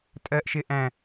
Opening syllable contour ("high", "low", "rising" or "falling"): low